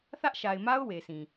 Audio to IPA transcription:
θ ä˦ ʔ ʃ a˨ ɪ̯ m a˦ ʊ̯ w e˨ sʰ ĩ˨

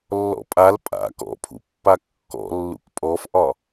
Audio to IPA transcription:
lː ɔ̰ pʼ a l pʼ a̰ k ɔ̰ pʰ ṵ pː a kː ɔ̰ lː ṵ k pʼ ɔ f ʔ ɒ

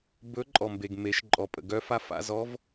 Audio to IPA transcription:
b ɵ˧˥ ǃʼ ɔ˩ m b e˩ ɡ m e˩˧ ʃ ǃʼ ɔ˩ pʼ ə̰˩ ɡ œ˧ f a˧˥ f a̰˧ z ɔ˧˥ v

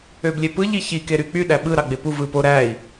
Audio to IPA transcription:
ø b lʲ e p ɯ ʎ i ç i k e ɾ y k͡p y ɗ æ ɓ ɯ ɾ ɑ ɡ͡b e p u v ɯ p o ɾ æ i̯

